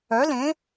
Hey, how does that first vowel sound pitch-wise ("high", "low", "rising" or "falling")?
rising